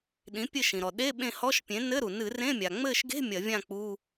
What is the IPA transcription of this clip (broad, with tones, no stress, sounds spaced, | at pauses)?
ɗ ĩ˩˥ pʲ ɘ˦˨ ʃ ĩ˩ ɾ ɔ˩ ɗ e˧˥˧ ɓ ẽ˦˨ h ɔ˧˥˧ ʃ pʲ ẽ˩˥ n ɘ˧˥˧ ɾ u˩ n ɨ˧˩˧ r ẽ˧˥˧ mʲ a˩ ŋ͡m ɘ˦˨ ʃ ɡ e̤˧˥˧ mʲ ɐ˧˩˧ vʲ ã˦˨ k͡p u˧˥˧